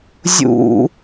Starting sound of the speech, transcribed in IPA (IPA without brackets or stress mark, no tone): zʲ